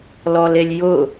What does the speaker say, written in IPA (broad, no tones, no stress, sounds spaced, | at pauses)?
l ɔ l e lʲ j ʊ